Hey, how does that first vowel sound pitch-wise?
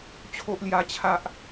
high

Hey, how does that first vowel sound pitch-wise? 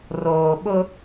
low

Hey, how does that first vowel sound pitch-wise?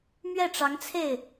falling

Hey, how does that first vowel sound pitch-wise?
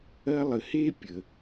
high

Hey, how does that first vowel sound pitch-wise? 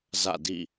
falling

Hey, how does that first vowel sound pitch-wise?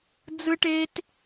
high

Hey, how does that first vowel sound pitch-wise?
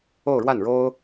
falling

